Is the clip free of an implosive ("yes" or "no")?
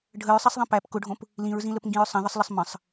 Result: yes